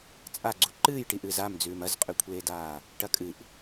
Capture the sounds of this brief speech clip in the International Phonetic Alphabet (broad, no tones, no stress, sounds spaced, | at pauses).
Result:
t͡sʼ a ɡ͡ǀ u ǃ ɨː j ʈ i ʔ ɨː z a m d͡z ʉː m ɐ z qʼ ʉ kʷʰ eː d aː | ʈ ɐ kʼ ɨ ʔ